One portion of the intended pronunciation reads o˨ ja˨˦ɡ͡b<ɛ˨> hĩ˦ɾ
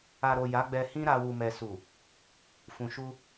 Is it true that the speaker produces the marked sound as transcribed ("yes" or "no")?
no